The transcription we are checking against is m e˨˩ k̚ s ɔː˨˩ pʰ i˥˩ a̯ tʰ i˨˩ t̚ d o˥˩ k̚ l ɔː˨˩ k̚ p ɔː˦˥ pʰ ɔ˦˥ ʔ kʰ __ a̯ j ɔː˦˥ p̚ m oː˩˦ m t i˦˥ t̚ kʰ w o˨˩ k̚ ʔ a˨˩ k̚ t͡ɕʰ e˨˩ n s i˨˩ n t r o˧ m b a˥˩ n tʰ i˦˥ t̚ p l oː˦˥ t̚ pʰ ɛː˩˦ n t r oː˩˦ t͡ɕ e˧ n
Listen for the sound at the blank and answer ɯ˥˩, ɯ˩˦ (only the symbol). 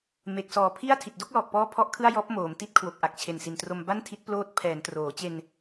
ɯ˥˩